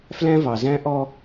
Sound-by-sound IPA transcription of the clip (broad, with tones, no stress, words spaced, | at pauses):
flæ̃˦vɑ˨zæ̃˦ʔɔ˦